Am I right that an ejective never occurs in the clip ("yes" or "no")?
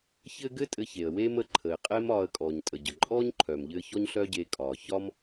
no